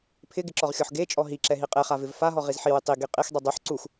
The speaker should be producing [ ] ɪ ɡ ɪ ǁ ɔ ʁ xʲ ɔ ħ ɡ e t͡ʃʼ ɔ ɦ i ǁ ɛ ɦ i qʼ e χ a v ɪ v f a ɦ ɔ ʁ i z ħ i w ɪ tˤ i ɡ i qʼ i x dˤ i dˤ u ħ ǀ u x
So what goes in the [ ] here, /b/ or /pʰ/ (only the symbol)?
pʰ